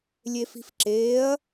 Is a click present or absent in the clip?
present